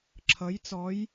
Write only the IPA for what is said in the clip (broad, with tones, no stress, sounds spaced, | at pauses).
ǁʰ ʌ˩˥ j t͡s ɔ˩˥ j